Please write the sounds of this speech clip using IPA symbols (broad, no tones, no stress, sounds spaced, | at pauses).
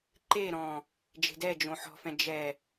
ǃ e ɾ ɔ̃ | d͡ʒ e̤ d ɛ d͡ʒ õ ħ ɔ̤ f ɛ̃ d͡ʒ ɛ